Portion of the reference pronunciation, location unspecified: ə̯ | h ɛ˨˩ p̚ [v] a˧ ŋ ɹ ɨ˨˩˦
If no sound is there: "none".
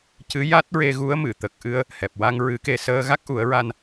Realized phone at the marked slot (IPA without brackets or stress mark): w